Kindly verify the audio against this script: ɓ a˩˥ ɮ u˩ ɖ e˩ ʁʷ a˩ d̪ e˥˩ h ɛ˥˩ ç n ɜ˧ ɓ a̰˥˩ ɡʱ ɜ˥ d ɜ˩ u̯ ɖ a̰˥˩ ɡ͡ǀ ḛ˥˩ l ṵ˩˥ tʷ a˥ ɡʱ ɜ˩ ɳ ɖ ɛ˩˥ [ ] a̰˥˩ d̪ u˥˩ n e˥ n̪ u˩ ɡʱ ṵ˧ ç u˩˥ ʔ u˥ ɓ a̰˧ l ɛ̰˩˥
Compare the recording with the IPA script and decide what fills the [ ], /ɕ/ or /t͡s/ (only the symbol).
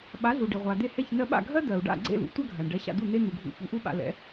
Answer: ɕ